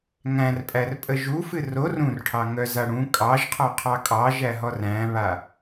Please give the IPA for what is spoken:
ŋæ̃rpʼærpʼə ʒufɨ ror ũrʈʰɑŋœza ɽũ kʼɑʒqʰɔqʰɑ kʼɑʒæɦɔr æ̃βa

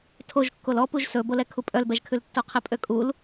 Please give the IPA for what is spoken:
tʰoʒ kːolɔpuʒ sɵbolɛ kʰupʼœlbɛʒkʰʉl tːoqʰɛpʼøkʼul

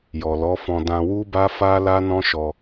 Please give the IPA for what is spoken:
jɔ˨lɔ˨˦fɔ̃˧ dã˧ wu˦ba˦fa˦ la˦nɔ̃˦ ʃɔ˧

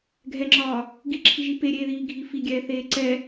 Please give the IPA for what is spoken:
ɡʱɛŋ͡ǁɒː | ɡiǁʰiʒi peɾʲeːðiːɡʱi fiɡʲɛːθeː ǀɛ

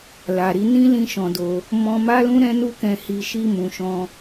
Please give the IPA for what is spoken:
la˨ɾi˧nĩ˦ lĩ˦ʃɔ̃˧do˧ | mɔ̃˧ma˦lũ˦ ɾɛ̃˦nu˦kɛ̃˧hi˧ ʃi˧mũ˨ ʃɔ̃˧

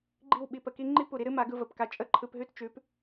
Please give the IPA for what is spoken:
ɡ͡ǃi˦˨w ɓi˧pə˨ki˦ ŋ͡ǃi˦pu˨ɾi˦ ɾɨ˦ma˨˦ɡɯ˧ və˨pka˧ t͡ʃʼə˦˨ǃʰɯ˧pɦʉ˦t t͡ʃʉ˨˦p

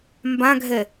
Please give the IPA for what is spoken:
mbãɡʱɛ

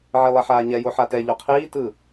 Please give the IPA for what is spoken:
ʕilˠɛħaːɲɛ joħatɛ ʎoqʰiː tɯ

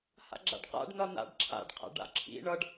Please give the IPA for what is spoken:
ha̰ɡ͡ǁa̰ɖqa̰ɖ n̪ʌn̪a̰ɖ ǁʰa̰ɖ qʰa̰ɖa̰ǁʰḭ ɳʌɖ

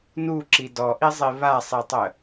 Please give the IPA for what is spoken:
nuǁi dɔʔizˤi βasˤitˤə

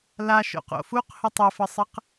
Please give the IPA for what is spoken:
laʃo̰qo̰ fuqhə tˤɘfəsˤɘq

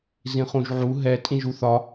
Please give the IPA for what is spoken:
zĩχũʒʕu ɦɛ tʼĩʒuθɒ

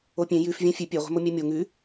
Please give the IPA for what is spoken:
opʲẽ jʉf vʲæ̃fʲʉ pʲe ʁʷɛ̤momʲɛmʲo ŋʉ

